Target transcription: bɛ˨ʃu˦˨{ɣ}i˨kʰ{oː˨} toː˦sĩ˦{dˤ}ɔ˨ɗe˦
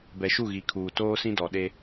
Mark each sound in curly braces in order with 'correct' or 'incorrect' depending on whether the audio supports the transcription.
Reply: correct, incorrect, incorrect

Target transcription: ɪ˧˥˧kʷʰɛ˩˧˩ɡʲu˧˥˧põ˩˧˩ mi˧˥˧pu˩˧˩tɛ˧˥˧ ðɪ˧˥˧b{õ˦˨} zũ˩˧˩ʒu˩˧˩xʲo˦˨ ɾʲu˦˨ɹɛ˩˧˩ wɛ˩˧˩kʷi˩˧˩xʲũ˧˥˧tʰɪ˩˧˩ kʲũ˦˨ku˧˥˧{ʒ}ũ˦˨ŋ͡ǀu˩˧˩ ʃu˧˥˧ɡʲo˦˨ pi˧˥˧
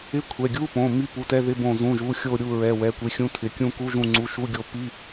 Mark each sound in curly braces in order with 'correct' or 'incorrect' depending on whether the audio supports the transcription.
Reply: correct, correct

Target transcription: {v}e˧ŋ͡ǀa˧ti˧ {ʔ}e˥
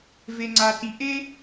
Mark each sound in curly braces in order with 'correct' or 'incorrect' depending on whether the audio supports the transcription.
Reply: correct, correct

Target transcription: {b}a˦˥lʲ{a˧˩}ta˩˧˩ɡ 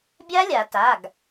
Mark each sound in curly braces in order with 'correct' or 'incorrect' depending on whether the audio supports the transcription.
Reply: incorrect, incorrect

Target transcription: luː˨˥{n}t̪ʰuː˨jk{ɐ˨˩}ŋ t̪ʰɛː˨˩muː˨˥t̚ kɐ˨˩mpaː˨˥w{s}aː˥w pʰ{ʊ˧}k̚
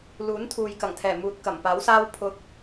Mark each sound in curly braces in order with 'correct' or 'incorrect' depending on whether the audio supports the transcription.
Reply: correct, correct, correct, correct

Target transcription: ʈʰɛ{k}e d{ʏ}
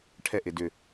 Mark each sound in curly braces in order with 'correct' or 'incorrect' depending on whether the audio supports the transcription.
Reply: incorrect, correct

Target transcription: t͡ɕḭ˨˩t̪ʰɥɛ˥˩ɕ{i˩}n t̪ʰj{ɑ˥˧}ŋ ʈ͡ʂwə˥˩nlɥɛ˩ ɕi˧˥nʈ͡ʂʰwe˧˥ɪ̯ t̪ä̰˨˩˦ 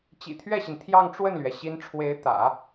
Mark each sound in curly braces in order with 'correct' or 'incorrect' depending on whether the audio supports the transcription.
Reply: correct, correct

